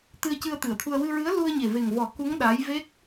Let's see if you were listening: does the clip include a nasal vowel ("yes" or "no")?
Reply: no